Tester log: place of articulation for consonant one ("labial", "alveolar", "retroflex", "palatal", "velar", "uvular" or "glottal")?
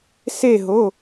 alveolar